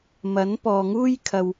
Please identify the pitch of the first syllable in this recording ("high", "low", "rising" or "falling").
rising